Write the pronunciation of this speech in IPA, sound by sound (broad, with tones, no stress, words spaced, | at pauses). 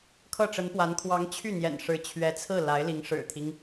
kʰɤ˥˩ʈ͡ʂə˧˥npwa˧˥n kʰwɑ˧˥ŋt͡ɕʰy˥˩n̪jɛ̰˨˩n ʂɻ̩˧˥t͡ɕʰɥɛ˧˥t͡sʰɹ̩˥˩ la˧˥ɪ̯li˧˥ŋ ʂɻ̩˨˩t̪ʰi˦ŋ